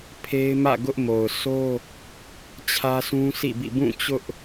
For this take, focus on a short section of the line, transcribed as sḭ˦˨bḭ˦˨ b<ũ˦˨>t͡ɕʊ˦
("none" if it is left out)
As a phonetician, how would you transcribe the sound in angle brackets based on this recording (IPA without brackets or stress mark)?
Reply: ũ˦˨